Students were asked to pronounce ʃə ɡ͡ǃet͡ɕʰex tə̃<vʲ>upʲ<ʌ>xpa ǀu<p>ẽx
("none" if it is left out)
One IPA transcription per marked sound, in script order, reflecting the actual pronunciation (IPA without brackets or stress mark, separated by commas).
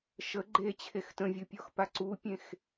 vʲ, ɔ, pʲ